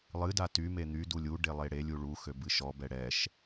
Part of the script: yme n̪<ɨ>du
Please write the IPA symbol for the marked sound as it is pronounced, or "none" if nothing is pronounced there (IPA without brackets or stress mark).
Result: y